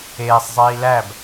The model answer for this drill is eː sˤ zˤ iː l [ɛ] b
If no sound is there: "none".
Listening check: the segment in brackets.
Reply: æ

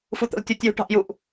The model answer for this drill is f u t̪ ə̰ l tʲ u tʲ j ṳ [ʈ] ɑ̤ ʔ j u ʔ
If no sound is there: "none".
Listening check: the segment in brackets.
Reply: ʈ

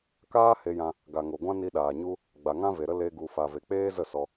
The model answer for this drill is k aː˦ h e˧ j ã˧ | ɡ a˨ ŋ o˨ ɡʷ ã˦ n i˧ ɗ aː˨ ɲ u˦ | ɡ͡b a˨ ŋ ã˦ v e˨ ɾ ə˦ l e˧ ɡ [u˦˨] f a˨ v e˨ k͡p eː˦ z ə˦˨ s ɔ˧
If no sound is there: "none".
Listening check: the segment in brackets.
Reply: u˨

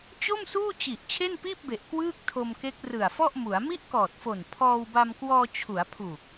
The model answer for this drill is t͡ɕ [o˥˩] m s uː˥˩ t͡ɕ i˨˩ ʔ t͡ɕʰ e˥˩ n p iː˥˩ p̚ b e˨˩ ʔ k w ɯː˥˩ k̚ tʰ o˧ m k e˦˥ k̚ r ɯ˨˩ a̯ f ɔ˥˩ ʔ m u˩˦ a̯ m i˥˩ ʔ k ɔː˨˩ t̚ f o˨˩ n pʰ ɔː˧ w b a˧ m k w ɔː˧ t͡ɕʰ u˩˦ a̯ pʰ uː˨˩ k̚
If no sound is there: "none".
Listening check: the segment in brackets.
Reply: o˥˩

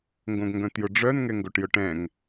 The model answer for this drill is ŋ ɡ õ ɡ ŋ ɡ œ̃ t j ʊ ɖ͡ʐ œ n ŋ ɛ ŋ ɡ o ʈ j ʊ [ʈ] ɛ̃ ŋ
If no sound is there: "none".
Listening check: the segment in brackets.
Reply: ʈ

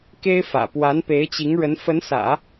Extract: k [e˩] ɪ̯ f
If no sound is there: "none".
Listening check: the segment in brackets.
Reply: e˥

